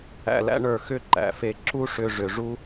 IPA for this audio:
æ̰˧ l æ̰˥ ɳ ə˞˧˩ x ʏ˥ ǃ æ̰˩˧ f e˧˩ ǁ u˥ ʂ ʏ˧ ʐ ʏ˩˧ ʐ u˥

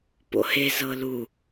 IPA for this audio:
p o̰ h e z ɤ l u

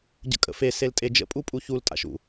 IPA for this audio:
ɟ ə̰ kʼ ə̰ f e s e l tʼ e d͡ʒ ə̰ pʼ u pʼ u ç u l tʼ a̰ ʃ ṵ

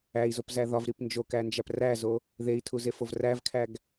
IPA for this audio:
æ i̯ z o p z æ ð ɒ v ɾ i p n d͡ʒ o k æ n d͡ʒ æ p r æ z o | ð e i̯ tʰ u z e f o v r æ v kʰ æ ɡ

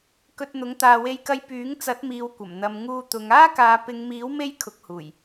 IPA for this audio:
k ɵ˧ t̚ n̪ ʊ˨˥ ŋ t̪ aː˧ w e˥ j k ɐ˥ j p yː˨˥ ŋ t͡s ɐ˨˥ t̚ m iː˨ w kʷ ɐ˨˩ m n̪ ɐ˨ m ŋ uː˧ t̪ ʊ˨˧ ŋ aː˥ k aː˨˧ p ɪ˨˧ ŋ m iː˨˥ w m e˥ j kʰ ʊ˨˥ k̚ h uː˨˩ j

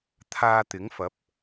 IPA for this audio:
t̪ʰ aː˧ t̪ ɪ˨˥ ŋ f ɐ˨˥ p̚

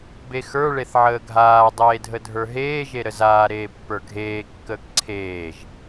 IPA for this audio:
b e x ə˞ ɭ e θ ʕ əː ɡʱ aː dˤ eː dʱ ə dʱ ə˞ ɦ eː ʒ e ɾ ə z aː ɾ eː pː ə˞ ɡʱ eː kː əː k ǀʰ eː ʒ

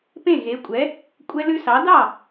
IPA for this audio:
p ẽ˥˨ ɣ e˨˥ kʷʼ ɛ˨˥ | kʷʼ ɛ˦ l ʉ˦ s ɑ˨˥ d ɑ˥˨

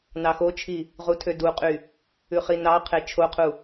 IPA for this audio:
n ɑ x o t͡ʃʰ i | ʁ u tʰ ø d u qʼ y | ʉ χ i n ɑ qʰ e t͡ʃʰ o qʰ u

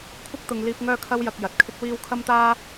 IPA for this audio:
kʷʰ ɐ˥ k̚ t̪ ʊ˨ ŋ l iː˧ p̚ ŋ œː˥ kʰ ɐ˥ w j ɐ˧ k̚ j ɐ˨ t̚ kʰ ɪ˥ k̚ w iː˥ w kʰ ɐ˥ m t̪ aː˥

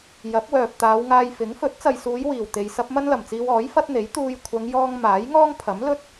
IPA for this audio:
j ɐ˨˥ p̚ w œː˨ p̚ t̪ aː˨˧ w ŋ aː˧ j f ɪ˨˥ ŋ f ɵ˨˥ t̚ t͡s ɐ˨ j s uː˨˧ j w iː˨˩ w t̪ e˨ j s ɐ˥ p̚ m ɐ˥ n l ɐ˨˩ m t͡s iː˧ w ɔː˨˥ j f ɐ˥ t̚ n̪ e˨˥ j t̪ uː˧ j kʷʰ ɐ˨˧ ŋ j ɔː˧ ŋ m aː˨˥ j ŋ ɔː˥ ŋ pʰ ɐ˨˥ m l ɵ˥ t̚

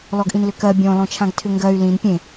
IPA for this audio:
l ɔ ɡ ʔ ĩ n l ʏ k ɜ bʲ ɔ̃ l ɔ̃ t͡ʃʰ ã ɡ tʰ ʏ ŋ ɡ ɜ y̯ l ĩ n pʲ ẽ

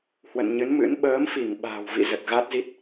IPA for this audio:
h w ə̰˧˨ n ɲ ɨ˨˦ n m ɨ̰˧˥ n ɓ əː˨˦ m f i˧˩ ŋ ɓ a̤ː˨˩ w v ḭ˧˨ z ə˨˩ t̚ ɣ a˦˥ t̚ z i˦˥ t̚

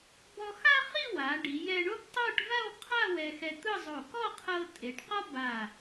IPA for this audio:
b ɔ˧ x a˥ χ i˥˧ w a˩˧ ɖ i˩˧ j ɛ˧ ɳ o˥ b tˤ ɤ˥˧ ʈ v a˥˧ w qʰ a˥˧ w ɛ˧ x ɛ˧ t̪ ɯ˥˧ zˤ o˧˩ k ɔ˥˧ qʰ ɤ˧ tʼ e˩˧ ʈ q ɔ˥ b a˧˩

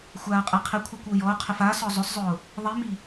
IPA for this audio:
xʷ aː ə̯ qʼ ɛ qʰ ɪ kʷʰ a kʷ ʊː j ɔ ʊ̯ qʰ ɪ f a s ɔ zˤ ʊ s zˤ ʊː | ðˤ i m i

